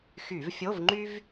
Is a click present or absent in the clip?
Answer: present